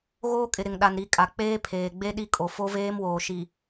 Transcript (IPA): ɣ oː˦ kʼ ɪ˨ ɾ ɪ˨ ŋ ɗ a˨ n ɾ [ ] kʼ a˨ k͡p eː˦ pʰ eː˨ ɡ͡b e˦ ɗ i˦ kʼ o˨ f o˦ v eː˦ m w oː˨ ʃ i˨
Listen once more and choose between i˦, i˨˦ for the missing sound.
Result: i˨˦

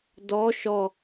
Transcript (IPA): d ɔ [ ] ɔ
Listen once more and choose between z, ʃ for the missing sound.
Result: ʃ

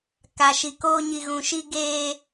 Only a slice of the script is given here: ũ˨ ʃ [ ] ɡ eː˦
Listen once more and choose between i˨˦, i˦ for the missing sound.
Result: i˦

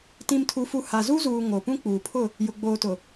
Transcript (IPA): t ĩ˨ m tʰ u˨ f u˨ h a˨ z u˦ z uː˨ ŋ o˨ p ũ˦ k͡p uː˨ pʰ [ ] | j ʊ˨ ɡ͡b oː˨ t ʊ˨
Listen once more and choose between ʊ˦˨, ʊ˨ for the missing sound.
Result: ʊ˦˨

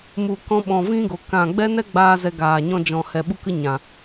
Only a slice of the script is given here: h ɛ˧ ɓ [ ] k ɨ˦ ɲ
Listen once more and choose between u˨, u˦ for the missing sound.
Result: u˦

